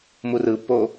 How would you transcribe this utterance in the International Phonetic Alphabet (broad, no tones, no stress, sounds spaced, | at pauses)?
m u r ɯ pː o